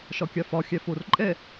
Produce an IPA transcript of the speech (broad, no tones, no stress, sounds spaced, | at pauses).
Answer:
ʃ ɒ kʲ a f ɒ xʲ æ f o r ǃʼ ɛ